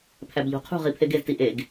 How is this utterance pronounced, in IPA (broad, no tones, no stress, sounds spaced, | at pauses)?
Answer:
pʰ æ b ʎ o̤ qʰ ṳ ʁ i pʰ e ɡ e z t i ʔ e ɡ